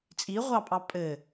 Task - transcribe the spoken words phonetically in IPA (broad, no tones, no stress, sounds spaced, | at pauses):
t͡sʼ i ʁʷ ɑ pʼ ɑ pʼ ɘ